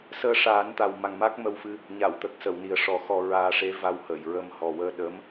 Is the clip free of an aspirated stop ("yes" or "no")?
yes